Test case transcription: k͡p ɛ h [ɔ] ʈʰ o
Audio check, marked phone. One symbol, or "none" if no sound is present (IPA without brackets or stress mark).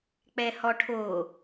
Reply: ɔ